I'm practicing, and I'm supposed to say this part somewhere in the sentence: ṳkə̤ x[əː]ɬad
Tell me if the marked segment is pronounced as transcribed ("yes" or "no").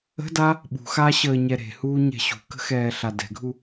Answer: no